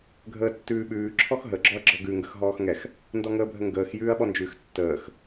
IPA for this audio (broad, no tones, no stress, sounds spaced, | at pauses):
ɡʱ əː tː ʉː ɓ ʉː ǁʰ ɔ x ɦ ə ɡ͡ǁ ɔ ɐ̯ ɡ͡ǁ ɔ ɡ ʉ ŋ ɡ ə x ɦ ɔː x ŋ ɛ x | n d ɔ ŋ əː bʱ ə ŋ ɡ əː x j ʉː ɐ̯ ɓ ɔ n d͡ʒ ʉ x tː əː x